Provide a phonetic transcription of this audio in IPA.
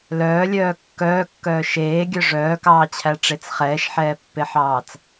l œː lʲ œː kː œː kː œː ʃ eː ɡʲ œ ʐ œː k ɑː t͡ɕʰ æ ʈ͡ʂ e t͡s χ ɛː ʃ ħ ɛː pː e ħ ɑː t͡s

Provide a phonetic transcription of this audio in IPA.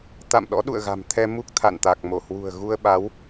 t̪ a̰˧˨ m ɗ ɔ̰˧˥ ɗ ṵ˧˨ ə̯ ɣ a̤˨˩ m t̪ʰ ɛ˧ m u˦˥ k̚ t̪ʰ a̰˧˨ n t̪ a˨˩ k̚ m o˧˩ h w ṳ˨˩ ə̯ ɣ u˧ ə̯ ɓ a˨˦ w

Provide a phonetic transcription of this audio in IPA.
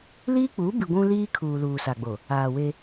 l iː˦ k͡p uː˨˦ b i˨ ɡʷ ũ˦ l iː˦ kʰ uː˨ l uː˨ s a˨ ɡ͡b o˨ | aː˨ w e˦

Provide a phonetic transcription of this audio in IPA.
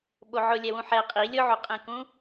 ɓ o ʕ ʊ lʲ ɛ w ũ ħ ɛ qʼ i lʲ ʊ ʕ u qʼ ẽ k ũ

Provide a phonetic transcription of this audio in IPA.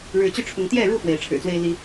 ɻ ɻ̩˨˦ t͡ɕ y˦ ʈ͡ʂʰ ʊ˨˦ ŋ t̪ j ɛ˥˨ ɻ u˥˨ f w e˨˦ ɪ̯ ʈ͡ʂʰ ɻ̩˨˩ t͡s w e˦ ɪ̯ l i˦

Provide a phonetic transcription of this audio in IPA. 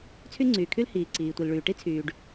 t͡sʰ y˥ ŋ͡ǀ yː˩ kʰ y˥ l h iː˩ ǀ iː˩ tʷ i˩ l ɭ yː˩ ʈ i˥ t͡sʰ yː˩ ɖ

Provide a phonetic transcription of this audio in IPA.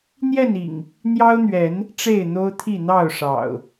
n̪ j ɛ˥˨ n ḭ˨˩ ŋ | n̪ j ɑ˦ ʊ̯ n̪ ɥ ɛ˨˦ n | ʈ͡ʂ e˥˨ ɪ̯ n̪ o˦ ʊ̯ t̪ʰ i˥˨ n̪ ɑ˥˨ ʊ̯ ʂ ɑ̰˨˩ ʊ̯

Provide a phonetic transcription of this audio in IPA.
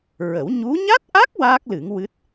ɹ ə˨˩˦ w ɲ u˧˥ ɲ a˦˥ t̚ ʔ a˦˥ k̚ w aː˦˥ k̚ l ɨ˨˩˦ ŋ w ɨ˦˥ t̚

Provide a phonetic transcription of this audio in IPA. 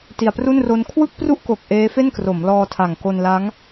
t i˨˩ a̯ p r u˥˩ n r o˦˥ n kʰ w ɯ˥˩ k̚ p r u˥˩ ʔ k o˨˩ k̚ ʔ eː˦˥ f e˥˩ n k r o˩˦ m l ɔː˧ tʰ a˨˩ ŋ k o˧ n l a˦˥ ŋ

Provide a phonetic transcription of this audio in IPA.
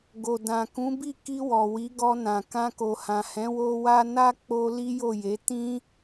ɡ o˨ d ã˨ k ũ˨˦ b i˦˨ k i˧ w ɔ˨ w i˨˦ ɡ ɔ˧ n ã˨ k ã˧ k o˨ h ã˨ h ɛ̃˨˦ w o˦ w a˦ n a˦ k͡p o˧ l i˦ j o˦˨ j e˨˦ t ĩ˦

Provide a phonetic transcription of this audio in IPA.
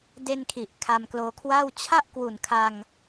d e˧ n kʰ i˨˩ ʔ kʰ a˧ m k l oː˧ kʰ w aː˥˩ w t͡ɕʰ a˥˩ ʔ k w u˨˩ n kʰ a˧ ŋ

